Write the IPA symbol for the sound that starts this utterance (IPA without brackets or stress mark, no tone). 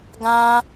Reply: ɡ